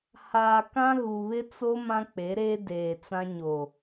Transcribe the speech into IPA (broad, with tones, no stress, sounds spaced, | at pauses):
h aː˨ k ã˦ ɣ u˨ β ɪ˦ t͡s o˦ m ã˦ k͡p e˨˦ ɾ eː˦ d eː˨ t͡s ã˦ ɲ o˨